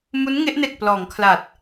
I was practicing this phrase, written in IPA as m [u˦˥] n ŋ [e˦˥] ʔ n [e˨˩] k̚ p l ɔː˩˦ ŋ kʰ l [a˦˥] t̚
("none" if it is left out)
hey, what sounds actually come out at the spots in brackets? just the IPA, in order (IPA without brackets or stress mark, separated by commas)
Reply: u˦˥, e˦˥, e˨˩, a˨˩